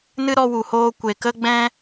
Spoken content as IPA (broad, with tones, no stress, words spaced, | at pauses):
nɨ˦ɾɔ˧wu˨hoː˧ kʷe˨ kə˦ɡ͡bɛ̃˦